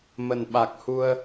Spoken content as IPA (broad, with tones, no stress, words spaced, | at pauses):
mə˨˩nɓa˨˩k̚hu˧ə̯